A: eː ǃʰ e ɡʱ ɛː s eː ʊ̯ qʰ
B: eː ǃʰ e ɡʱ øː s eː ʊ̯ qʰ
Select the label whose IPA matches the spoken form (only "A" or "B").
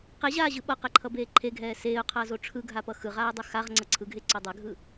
A